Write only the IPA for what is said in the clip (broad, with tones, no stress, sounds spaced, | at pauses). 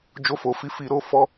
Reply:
d͡ʒ o˧ f o˨ f i˧ f i˧ ɾ o˧ f ɔ˧